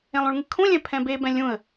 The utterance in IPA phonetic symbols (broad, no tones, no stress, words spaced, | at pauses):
ẽlˠũɭŋɨkʰũ lʲɛ̃pʰɛ̃be bɛ̃lʲũə̯